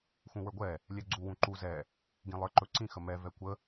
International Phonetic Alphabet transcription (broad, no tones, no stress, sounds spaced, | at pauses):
x ũ w ə˞ ɡʷ ɛ | lʲ ɛ ɡ͡ǀ u w ũ ǃ u z ɛ | ɡ ĩ lˠ ə˞ ǃ ɵ ǀ ĩ x ə m ɛ v ɛ kʷ ə